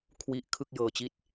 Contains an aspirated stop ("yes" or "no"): yes